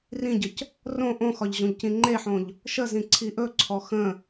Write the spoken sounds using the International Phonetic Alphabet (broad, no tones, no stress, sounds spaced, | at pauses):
r ĩ ɟ ə c | r õ ʔ õ x ɒ ʎ ʑ õ ʎ c ĩ ŋ͡ǃ e ħ õ ʎ | ʃ ə z ĩ ǀʰ i ʔ ɵ ǀʰ ɔ x ə̃